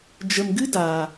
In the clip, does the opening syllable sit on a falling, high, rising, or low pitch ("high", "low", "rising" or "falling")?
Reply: low